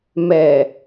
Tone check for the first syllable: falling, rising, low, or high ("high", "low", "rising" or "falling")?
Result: low